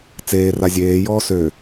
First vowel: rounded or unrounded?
unrounded